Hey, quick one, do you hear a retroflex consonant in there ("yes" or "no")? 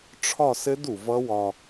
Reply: yes